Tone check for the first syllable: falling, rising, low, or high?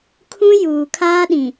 high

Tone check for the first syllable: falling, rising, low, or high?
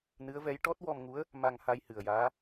rising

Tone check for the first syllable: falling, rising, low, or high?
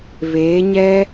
rising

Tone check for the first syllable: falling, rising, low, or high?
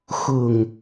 low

